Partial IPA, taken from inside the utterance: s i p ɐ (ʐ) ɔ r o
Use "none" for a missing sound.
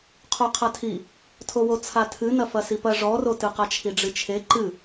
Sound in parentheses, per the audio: ʐ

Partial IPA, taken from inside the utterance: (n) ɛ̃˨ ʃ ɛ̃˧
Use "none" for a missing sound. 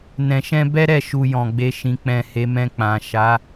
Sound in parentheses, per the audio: n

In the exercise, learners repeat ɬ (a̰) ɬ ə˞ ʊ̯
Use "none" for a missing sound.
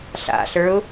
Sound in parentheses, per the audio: a̰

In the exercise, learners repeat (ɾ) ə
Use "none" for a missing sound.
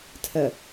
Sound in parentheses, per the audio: tʰ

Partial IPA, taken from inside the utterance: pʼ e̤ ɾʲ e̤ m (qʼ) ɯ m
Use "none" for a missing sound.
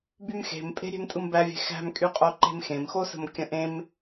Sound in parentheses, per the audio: tʼ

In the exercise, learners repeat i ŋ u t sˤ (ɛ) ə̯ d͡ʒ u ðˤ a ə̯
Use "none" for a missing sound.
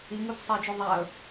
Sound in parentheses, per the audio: e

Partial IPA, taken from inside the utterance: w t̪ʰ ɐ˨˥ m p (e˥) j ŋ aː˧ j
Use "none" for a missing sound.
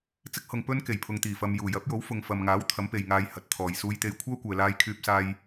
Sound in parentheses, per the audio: e˨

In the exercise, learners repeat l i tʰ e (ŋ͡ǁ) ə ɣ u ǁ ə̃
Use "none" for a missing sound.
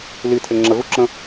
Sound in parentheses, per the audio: ŋ͡ǁ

